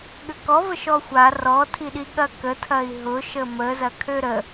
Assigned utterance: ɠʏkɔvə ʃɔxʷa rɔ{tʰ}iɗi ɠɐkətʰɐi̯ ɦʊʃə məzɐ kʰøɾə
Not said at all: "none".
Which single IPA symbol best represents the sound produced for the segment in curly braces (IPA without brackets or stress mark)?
tʰ